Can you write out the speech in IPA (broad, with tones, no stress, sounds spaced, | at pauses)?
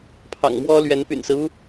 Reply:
pʰ ɑ̰˨˩ ŋ m w ɔ˥ l ɥ ɛ˧˥ n p y̰˨˩ n s ɹ̩˦ u˥